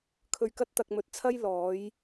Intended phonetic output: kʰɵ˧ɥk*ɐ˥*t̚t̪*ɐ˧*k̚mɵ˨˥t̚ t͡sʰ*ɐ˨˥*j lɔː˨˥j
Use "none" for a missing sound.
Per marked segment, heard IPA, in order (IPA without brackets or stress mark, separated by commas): ɐ˥, ɐ˧, ɐ˥